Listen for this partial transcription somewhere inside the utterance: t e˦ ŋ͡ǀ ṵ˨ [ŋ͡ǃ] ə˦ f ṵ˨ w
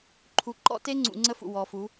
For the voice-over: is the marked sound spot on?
no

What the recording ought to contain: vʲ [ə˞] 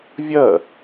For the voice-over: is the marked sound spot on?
no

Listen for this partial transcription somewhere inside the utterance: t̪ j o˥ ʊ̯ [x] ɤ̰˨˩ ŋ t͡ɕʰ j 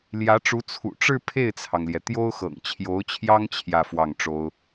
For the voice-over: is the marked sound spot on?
yes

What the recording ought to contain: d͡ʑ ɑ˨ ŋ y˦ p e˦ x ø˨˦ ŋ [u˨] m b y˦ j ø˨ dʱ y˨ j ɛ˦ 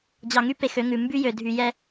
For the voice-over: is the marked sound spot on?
no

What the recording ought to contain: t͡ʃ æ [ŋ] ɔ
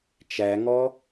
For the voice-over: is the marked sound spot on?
yes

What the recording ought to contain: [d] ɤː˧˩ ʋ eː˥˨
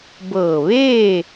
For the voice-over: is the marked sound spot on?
no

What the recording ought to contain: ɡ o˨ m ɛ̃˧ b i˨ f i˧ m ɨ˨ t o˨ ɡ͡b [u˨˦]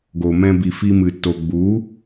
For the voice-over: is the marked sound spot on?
yes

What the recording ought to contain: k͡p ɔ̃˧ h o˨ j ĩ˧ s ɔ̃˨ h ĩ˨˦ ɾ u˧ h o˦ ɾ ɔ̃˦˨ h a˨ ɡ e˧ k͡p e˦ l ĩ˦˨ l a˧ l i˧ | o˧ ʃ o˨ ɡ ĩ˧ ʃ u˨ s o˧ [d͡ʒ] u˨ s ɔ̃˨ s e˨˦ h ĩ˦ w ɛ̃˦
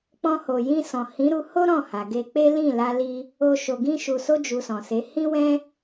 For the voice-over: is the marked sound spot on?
yes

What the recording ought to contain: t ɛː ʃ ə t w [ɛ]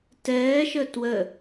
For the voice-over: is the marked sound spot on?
no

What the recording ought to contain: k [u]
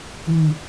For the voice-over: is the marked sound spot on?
yes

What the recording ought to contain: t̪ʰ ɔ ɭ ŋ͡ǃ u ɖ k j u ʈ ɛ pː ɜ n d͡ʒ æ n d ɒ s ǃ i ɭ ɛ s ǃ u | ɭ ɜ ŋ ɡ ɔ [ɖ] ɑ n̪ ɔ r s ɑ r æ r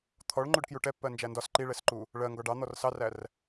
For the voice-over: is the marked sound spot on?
yes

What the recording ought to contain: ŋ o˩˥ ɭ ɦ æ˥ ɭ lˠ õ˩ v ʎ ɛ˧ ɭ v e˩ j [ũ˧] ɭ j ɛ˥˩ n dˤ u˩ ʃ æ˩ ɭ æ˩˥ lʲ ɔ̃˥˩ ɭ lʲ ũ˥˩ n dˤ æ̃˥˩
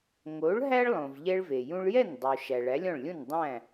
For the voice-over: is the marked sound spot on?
yes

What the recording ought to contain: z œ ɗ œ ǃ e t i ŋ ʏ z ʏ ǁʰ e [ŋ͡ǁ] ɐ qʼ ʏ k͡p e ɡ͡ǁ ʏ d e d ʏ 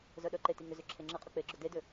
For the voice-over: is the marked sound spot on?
yes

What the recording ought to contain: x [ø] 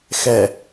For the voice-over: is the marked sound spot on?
no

